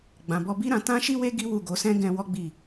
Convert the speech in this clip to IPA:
ɡ͡b ã˨ b ɔ˧ b i˦ ɾ ã˧ t ã˦ ʃ i˦ w e˦ ɡ i˦ w u˦˨ ɡ o˨˦ s ɛ̃˦ ɡ ɛ̃˧ w ɔ˦ ɡ͡b i˦˨

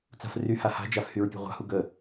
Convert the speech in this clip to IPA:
t͡s a̤ f r y h a h a̤ d͡ʒ a f h y ɹ pʲ ṳ ʁʷ a̤ h u ɡ ə

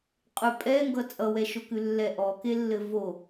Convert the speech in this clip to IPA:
qʼ ʉ pʼ ɛ ŋ ɡ ʌ t͡sʼ ʌ w ɛ ʃ o k ʉ lː ɛ ʔ ɔ k e lː ɘ v o

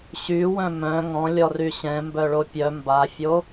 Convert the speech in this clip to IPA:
ɕ y w œ̃ m œ̃ ŋ ɔ̃ lʲ ɔ r y ɕ ɛ̃ m b œ ɭ o pʲ œ m b a fʲ o

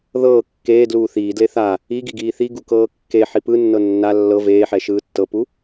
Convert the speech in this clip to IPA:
ð ɤː kː eː d l uː θ iː d l e θ a | i ɡ i ɡ iː θ i ɡ u k ɤː kː e ħ i p ɯ nː ɤ nː a lː ɤ v eː ħ ɛ ʃ ɯː tː ɤ p u

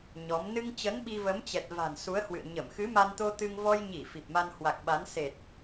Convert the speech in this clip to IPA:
ɲ ɔ˨˦ m n ɨ˧ ŋ t͡ɕ ə˨˦ n ɓ i˧ v ə˨˦ m t͡ɕ ɛ˨˩ t̚ v a̤˨˩ n s u˨˦ ə̯ h w ɨ̰˧˨ ə̯ ɲ ə˧˩ m x ɨ˨˦ m a˧ n t̪ o˧ t̪ ɨ˧ ŋ v ɔ˧ j ɲ i˧˩ f i˨˩ p̚ m a˧ n h w a˨˩ k̚ ɓ a˨˦ n s e˨˩ t̚

